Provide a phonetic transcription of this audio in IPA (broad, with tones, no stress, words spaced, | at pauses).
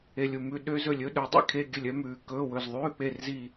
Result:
e˦˨lʲu˦˨mʉ˧˥˧ ɗø˦˥zɵ˦˨lʲɵ˧˥˧ ɗɵ˦˥dˤḭ˦˥ kʰe˧˥˧ɡʲɵ˦˨lʲœ˦˥ mʉː˨˦kɵː˧˥˧ wɵ˦˨z ðˤʉː˧˥˧k͡pe˦˨rzi˦˨